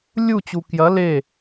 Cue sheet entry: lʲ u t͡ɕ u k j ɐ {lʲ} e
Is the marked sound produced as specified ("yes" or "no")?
no